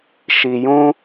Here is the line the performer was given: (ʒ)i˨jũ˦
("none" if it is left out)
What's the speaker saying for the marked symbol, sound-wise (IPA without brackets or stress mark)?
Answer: ʃ